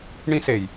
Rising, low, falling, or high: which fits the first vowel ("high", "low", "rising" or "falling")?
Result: high